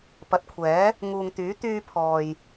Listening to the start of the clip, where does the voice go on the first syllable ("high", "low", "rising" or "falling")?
rising